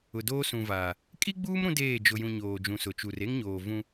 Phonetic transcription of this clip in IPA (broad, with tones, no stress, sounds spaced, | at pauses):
ʊ˨ d oː˦ s ũ˨ v aː˨ | kʼ i˦ ɡ͡b uː˦ m ɾ ũ˦ d eː˦˨ d͡ʒ ʊ˨ j ũ˨ ɲ oː˨ d͡ʒ ũ˨ s ʊ˨ t͡ʃ u˨ r e˦ ŋ ɲ oː˨ v ũ˦